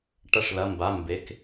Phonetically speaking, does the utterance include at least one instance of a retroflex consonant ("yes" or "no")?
yes